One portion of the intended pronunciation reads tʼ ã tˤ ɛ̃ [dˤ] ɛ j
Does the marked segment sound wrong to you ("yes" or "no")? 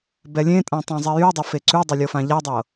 yes